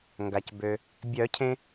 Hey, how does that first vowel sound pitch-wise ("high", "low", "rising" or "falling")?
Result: low